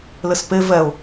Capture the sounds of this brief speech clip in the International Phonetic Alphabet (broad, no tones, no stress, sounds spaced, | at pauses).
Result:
l ɘ s p e v ɛ ʊ̯